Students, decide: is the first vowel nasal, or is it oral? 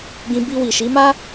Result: nasal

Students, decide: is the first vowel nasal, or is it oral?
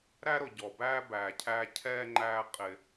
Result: oral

